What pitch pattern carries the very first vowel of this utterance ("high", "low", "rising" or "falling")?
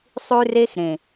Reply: high